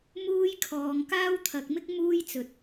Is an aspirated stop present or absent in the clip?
present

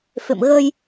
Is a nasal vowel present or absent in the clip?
absent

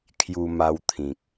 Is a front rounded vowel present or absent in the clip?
absent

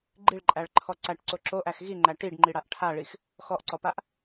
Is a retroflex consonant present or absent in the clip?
present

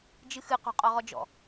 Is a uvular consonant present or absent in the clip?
present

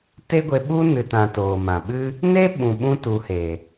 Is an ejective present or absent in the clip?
absent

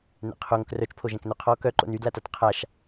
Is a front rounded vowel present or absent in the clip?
present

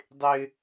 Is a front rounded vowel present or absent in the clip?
absent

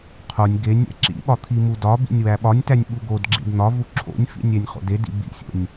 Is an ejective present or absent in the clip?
absent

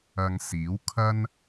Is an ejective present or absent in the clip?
absent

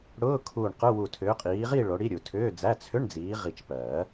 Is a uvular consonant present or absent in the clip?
present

